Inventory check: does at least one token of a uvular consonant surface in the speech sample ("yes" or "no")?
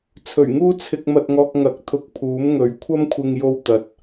no